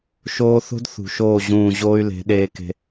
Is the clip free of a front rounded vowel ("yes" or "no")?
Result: no